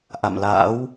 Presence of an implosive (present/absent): absent